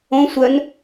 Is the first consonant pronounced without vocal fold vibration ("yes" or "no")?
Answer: yes